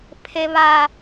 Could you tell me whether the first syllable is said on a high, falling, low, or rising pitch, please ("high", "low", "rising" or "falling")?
high